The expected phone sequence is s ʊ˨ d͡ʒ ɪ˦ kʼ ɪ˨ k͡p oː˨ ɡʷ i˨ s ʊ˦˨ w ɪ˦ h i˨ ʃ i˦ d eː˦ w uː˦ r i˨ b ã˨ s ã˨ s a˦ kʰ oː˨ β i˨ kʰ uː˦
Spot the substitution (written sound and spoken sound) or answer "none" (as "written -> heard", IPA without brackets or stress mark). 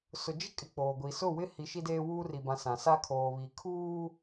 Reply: none